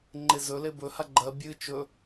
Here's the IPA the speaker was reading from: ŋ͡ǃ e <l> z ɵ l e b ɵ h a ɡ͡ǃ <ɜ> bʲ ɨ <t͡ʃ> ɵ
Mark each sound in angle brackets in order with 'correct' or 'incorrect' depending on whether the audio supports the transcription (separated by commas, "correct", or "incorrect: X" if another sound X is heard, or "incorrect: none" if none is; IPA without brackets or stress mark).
incorrect: none, correct, correct